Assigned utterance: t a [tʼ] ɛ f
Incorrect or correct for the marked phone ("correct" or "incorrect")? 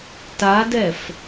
incorrect